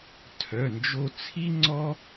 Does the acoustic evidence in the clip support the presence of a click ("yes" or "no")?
yes